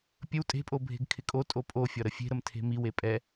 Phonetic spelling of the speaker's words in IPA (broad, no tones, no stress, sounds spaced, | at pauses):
pʲ ə w tʼ e̤ pʼ o bʱ e̤ ɡ kʰ ɪ kʼ o tʼ o pʼ o fʲ ɒ ɾ ə fʲ e̤ ɾ ə m tʰ e̤ m i w e pʼ ɛ